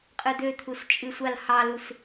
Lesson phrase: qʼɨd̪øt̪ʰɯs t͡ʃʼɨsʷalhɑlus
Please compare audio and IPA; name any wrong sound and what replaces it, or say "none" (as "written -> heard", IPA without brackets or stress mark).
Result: ɯ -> u